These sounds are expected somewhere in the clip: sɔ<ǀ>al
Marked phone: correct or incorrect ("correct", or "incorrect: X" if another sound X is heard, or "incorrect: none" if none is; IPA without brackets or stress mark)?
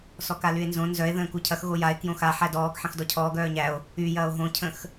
incorrect: k